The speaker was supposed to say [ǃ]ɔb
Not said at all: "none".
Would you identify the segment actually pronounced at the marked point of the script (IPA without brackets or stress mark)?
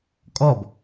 kʼ